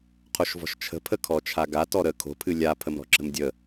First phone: qʰ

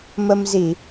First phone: m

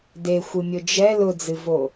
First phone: d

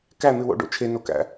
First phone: k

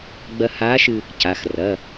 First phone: ɡ͡b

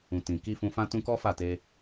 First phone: ũ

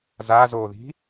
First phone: z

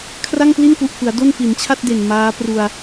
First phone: kʰ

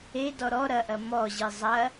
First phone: e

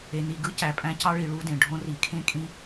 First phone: e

